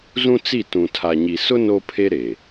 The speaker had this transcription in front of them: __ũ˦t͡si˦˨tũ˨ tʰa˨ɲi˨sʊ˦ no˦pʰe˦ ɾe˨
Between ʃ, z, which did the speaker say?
z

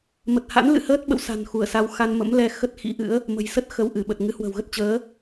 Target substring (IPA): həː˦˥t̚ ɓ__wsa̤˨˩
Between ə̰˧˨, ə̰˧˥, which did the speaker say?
ə̰˧˨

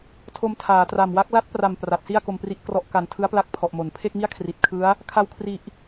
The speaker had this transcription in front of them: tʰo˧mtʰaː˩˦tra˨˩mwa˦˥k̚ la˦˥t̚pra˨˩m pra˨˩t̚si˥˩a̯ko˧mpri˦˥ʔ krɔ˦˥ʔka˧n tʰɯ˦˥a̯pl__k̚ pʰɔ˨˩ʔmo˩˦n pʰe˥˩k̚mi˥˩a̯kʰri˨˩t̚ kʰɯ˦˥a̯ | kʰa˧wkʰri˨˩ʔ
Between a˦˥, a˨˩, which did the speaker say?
a˦˥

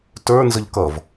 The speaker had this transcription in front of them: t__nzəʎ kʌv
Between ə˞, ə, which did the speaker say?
ə˞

